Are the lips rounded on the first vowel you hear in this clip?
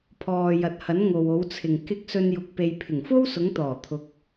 yes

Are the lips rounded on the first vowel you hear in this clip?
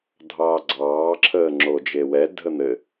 no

